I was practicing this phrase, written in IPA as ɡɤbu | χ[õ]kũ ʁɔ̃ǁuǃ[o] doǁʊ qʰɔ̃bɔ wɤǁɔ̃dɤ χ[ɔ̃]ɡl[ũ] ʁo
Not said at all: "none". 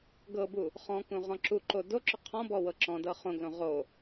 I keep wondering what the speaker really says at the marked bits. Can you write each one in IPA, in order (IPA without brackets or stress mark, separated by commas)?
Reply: ɔ̃, o, õ, õ